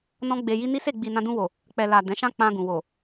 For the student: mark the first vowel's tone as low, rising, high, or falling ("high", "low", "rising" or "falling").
high